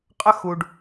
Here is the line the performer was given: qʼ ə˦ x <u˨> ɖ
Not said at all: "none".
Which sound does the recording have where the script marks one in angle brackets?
u˨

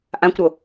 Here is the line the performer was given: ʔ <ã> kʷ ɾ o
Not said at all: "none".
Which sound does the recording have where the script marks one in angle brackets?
ã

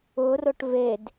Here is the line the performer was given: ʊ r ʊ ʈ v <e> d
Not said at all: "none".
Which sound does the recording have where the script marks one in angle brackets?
e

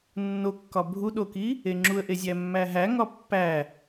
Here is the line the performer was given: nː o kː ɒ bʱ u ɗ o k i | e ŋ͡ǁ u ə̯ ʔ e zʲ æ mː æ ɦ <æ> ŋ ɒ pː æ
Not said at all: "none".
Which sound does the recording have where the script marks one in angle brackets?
æ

